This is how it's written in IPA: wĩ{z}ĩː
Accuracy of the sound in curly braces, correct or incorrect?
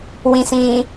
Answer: incorrect